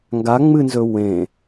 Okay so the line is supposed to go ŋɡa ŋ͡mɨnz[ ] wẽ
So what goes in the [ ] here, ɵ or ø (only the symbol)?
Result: ɵ